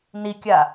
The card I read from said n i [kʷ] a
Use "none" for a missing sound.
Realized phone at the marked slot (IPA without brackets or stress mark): kʲ